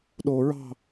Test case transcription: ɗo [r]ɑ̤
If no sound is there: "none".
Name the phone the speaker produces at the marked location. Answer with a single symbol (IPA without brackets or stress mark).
ɹ